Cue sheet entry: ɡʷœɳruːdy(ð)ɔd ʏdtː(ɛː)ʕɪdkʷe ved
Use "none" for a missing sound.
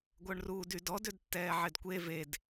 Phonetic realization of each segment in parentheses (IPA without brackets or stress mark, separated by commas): d, ɛː